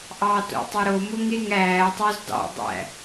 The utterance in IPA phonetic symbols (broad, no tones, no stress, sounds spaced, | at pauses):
ʔ ɑ t o̰ tˤ e ɾ o m o ŋ e ŋ æː tˤ o z d ɑ̰ dˤ æ̰